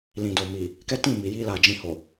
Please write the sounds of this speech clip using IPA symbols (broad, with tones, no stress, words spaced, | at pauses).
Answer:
lĩ˨do˨mi˨ | kɛ˦tĩ˦˨mi˨ ji˧la˨ d͡ʒĩ˧ho˨